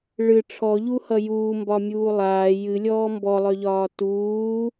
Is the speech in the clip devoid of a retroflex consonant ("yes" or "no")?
no